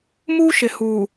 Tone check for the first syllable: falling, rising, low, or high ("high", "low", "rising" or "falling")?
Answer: high